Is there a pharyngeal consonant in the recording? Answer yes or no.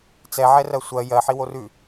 yes